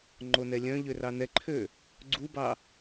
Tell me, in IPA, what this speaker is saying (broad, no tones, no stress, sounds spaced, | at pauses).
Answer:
ŋ͡ǃ o n ɛ lʲ œ̃ ʎ ø r ɑ n ɛ ǃʰ ø | ɡ͡ǀ u b ɑ